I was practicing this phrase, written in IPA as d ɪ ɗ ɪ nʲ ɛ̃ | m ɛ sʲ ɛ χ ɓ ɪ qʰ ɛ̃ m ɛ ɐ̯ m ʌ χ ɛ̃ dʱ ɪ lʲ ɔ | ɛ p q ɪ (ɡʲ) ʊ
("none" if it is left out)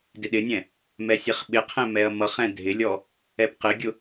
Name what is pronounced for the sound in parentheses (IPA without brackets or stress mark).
ɡʲ